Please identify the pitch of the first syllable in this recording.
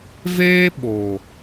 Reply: high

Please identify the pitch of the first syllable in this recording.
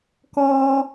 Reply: high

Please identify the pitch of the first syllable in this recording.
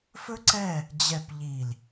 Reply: high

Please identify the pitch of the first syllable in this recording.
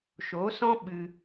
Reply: rising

